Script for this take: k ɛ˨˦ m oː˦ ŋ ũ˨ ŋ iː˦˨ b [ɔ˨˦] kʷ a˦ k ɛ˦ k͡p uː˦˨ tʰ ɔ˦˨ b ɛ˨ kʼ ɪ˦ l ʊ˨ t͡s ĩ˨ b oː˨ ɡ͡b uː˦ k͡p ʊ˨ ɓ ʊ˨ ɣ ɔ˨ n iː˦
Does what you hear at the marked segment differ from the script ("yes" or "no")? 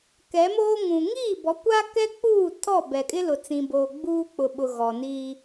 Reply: no